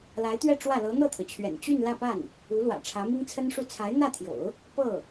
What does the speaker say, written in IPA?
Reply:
l a˧˥ ɪ̯ t̪ ɥ ɛ˥˧ ʈ͡ʂ w ä˥˩ l ɤ˧˥ n̪ ɤ˥˩ t̪ʰ ɤ˩ t͡ɕʰ ɥ ɛ̰˨˩ n t͡ɕ y˥˧ n l ä˥˧ p a˥˩ n | u˧˥ l w ä̰˨˩ ʈ͡ʂʰ ä˧˥ m i˥ ŋ t͡sʰ ə˥ n ʂ u˥˩ t͡sʰ a˧˥ ɪ̯ n̪ ä˥˩ t̪ʰ j o̰˨˩˦ ʊ̯ | p ɤ˥˩

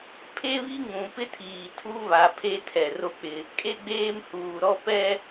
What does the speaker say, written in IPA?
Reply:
pʰ e˦ β i˦ ŋ ũ˨ p ɪ˦ tʰ iː˨ tʰ u˦ β a˨ pʰ e˦ tʰ ɛ˨ r o˦ k͡p ɪ˦ | kʼ e˦ ɡ͡b eː˦ m h uː˨ ɾ ɔ˦ p ɛ˦

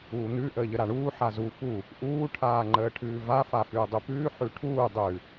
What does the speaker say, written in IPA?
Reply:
uː n̪ ʉ ʔ əː ʎ ə ɾ a ɳ uː ħ a z u f u | ʔ uː ʈʰ aː ŋ͡ǃ əː ʈʰ ʉː v a f a f ʉː dˤ ʉ p ʉː ħ ʉ ʈʰ uː dˤ ʉ

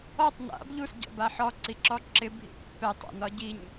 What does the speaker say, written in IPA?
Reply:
ɔ tˤ n a̰ b ʎ u s ɟ ɔ̰ b a ħ ɔ ǀ i ǁ ɔ ǁ ɪ bʱ ḭ pː ɛ tˤ a̰ n ɒ ɟ i ɲ

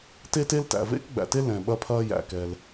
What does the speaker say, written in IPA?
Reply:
t e˥ t e˥ l t æ̰˩ v ḛ˥ k ɡ͡b æ̰˩ t e˥ l ɛ̃˩ ɓ ɐ˥ pʰ ɐː˥ j æ̰˩ k ɛ˩ l

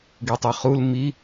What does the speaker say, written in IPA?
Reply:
ɡ i tˤ i χ u l m i

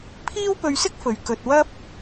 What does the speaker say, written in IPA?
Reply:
pʰ iː˥ w p ɵ˧ ɥ s ɪ˥ k̚ f ɵ˨ ɥ k ɵ˧ t̚ w ɐ˥ p̚

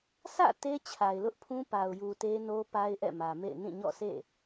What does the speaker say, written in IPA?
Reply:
sʰ ä̰˦˨ t e˦ t͡ɕʰ a˨ ɪ̯ l ʊ˦ ʔ pʰ ũ˦ p a˨ ʊ̯ j u˨ t e˦ n o˦ p a˦ ɪ̯ ʔ ɛ̰˦˨ m ä˨ m ḛ˦˨ ɪ̯ n ĩ˦˨ ɲ ɔ̰˦˨ sʰ ḛ˦˨

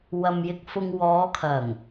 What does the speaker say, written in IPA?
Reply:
w ɐ˧ m j ɪ˧ k̚ f ʊ˧ ŋ w ɔː˨˧ kʰ ɐ˨˩ ŋ

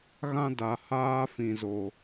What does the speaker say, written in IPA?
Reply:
ɣ ã˦ d a˨ h aː˦ f ĩ˨ z o˨

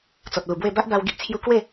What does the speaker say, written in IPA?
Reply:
t͡s ɔ˨ t̚ l u˨˩ b w e˥˧ b a˦ ʔ b a˧ w ɡ i˦ ʔ t͡sʰ j u˦ k w e˥˧

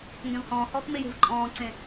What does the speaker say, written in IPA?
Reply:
ŋ ɡ ɛ̃ v h ɔ̃ː h ɔː k m e j e̤ v ǃʼ ɔ̃ː ǀ ẽ

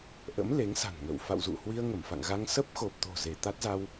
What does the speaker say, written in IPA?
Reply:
ʔ ə̰˧˥ m l e˨˦ ŋ s a̤˨˩ n ŋ ə̰ː˧˨ w f a̰˧˨ w z ṵ˧˨ h w i˧ ə̯ ŋ ə˧˩ m f a̰˧˨ ŋ ɣ a˧ ŋ s ə˦˥ p̚ x o˨˩ p̚ t̪ o̤˨˩ z e˧˩ t̪ a˦˥ t̚ z a˧ w

